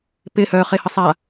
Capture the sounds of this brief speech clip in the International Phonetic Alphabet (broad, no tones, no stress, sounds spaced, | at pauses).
p ɪ h œ χ e h ə sˤ a